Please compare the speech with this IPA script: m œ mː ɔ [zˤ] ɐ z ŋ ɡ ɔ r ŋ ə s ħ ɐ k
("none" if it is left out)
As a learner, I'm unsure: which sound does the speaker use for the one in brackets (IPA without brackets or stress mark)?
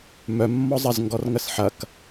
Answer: zˤ